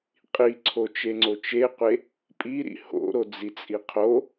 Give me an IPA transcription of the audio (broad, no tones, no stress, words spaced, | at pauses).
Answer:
qʼiǀʰot͡ʃeŋ͡ǀo t͡ʃeqʷe | pʼiɾḭ ho̰ɾod͡zit͡sʼi qʰo